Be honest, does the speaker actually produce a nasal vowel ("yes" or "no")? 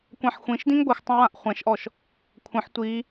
yes